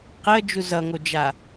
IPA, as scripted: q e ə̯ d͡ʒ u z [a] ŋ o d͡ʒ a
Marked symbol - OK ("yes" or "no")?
no